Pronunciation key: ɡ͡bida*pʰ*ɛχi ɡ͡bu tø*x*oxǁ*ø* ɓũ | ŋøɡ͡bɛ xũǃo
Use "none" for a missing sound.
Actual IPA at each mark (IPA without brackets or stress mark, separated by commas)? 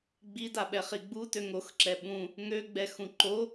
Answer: ɓ, ŋ, ɛ